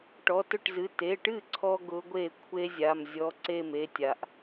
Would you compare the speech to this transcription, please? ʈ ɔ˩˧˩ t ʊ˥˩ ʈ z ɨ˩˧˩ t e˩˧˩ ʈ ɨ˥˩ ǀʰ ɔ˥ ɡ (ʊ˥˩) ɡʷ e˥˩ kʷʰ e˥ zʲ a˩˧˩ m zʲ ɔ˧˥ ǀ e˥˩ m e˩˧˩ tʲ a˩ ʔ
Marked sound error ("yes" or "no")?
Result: yes